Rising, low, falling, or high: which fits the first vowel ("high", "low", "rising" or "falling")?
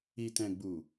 low